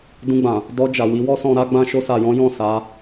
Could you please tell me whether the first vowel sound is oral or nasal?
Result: nasal